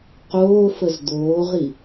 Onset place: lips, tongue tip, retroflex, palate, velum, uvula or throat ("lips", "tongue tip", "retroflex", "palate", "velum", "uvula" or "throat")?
uvula